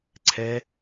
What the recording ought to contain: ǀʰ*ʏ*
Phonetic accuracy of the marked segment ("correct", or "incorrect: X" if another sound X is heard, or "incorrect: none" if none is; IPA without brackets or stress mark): incorrect: ɛ